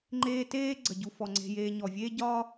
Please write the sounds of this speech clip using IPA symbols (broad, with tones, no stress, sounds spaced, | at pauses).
ŋ͡ǃ eː˦ t eː˥ ɡ͡ǀ ə˩ ɟ u˨ f ɔ˩ ŋ͡ǀ e̤˨ j eː˨ ɲ ɔ˩ vʲ eː˦ ɟ ɒː˦